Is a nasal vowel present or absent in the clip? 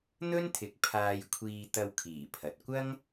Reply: absent